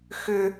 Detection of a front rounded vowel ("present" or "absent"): present